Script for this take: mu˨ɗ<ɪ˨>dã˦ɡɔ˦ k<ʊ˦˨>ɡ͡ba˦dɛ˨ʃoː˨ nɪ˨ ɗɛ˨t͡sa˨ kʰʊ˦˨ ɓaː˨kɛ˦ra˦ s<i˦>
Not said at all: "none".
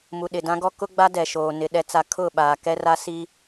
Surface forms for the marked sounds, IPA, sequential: ɪ˨, ʊ˦, i˦

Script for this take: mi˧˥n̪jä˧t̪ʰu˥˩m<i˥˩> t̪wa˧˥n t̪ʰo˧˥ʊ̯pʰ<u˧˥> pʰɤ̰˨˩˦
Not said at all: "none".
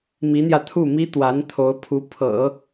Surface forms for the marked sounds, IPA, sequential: i˥, u˧˥

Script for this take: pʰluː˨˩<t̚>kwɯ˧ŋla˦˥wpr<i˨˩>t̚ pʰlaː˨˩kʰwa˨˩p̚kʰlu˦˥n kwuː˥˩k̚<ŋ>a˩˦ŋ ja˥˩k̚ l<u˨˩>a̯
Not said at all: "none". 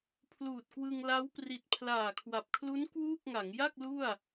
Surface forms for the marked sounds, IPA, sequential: t̚, i˨˩, ŋ, u˥˩

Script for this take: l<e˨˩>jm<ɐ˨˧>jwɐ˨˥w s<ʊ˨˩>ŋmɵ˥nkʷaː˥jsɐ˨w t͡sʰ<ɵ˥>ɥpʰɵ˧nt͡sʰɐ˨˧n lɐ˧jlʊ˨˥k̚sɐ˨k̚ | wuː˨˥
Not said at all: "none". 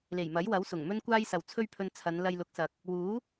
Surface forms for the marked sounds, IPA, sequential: e˨˩, ɐ˨˥, ʊ˨˩, ɵ˥

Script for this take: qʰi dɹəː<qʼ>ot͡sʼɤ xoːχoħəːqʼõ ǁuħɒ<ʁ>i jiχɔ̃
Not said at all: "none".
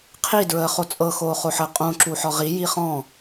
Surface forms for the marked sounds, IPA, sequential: χ, ʁ

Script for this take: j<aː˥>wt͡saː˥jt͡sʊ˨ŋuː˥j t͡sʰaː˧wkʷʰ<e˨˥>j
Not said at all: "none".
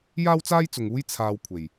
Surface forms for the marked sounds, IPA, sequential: aː˥, e˨˩

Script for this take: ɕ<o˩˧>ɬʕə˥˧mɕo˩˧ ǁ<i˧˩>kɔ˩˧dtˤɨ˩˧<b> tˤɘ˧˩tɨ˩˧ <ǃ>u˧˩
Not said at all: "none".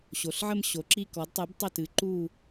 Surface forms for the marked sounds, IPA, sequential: o˩˧, i˧˩, b, ǃ

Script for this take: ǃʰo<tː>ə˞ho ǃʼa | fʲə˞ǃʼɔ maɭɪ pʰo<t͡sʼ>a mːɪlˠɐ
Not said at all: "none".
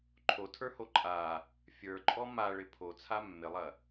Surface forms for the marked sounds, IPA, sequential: tʰ, t͡sʰ

